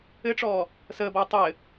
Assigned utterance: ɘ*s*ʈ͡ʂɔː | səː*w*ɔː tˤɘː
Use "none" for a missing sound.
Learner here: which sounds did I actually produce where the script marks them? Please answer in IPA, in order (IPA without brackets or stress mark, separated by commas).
none, b